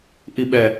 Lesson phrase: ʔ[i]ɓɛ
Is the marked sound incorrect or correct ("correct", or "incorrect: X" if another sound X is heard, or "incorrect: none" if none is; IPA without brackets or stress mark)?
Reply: correct